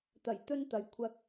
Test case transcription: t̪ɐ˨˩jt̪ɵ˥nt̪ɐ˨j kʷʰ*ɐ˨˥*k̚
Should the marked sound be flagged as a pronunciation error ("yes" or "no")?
yes